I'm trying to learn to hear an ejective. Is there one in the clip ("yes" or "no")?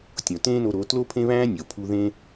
no